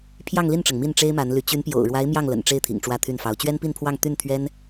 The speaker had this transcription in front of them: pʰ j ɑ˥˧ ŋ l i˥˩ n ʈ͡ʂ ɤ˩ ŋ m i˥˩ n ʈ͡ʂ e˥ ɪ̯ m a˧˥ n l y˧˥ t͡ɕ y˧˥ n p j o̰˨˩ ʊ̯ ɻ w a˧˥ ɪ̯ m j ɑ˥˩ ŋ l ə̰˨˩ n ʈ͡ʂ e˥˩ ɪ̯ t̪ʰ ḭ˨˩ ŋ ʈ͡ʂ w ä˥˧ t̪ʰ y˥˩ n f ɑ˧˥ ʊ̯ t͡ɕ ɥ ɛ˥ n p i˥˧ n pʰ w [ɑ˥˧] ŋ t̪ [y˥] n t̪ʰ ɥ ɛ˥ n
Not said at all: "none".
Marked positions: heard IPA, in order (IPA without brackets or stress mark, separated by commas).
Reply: ɑ˥˧, y˥˩